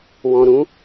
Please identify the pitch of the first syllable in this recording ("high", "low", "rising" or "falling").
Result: low